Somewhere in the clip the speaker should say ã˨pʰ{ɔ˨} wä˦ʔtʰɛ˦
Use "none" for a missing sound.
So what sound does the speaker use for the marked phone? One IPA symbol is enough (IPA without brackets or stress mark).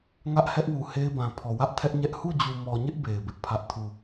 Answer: ɔ˨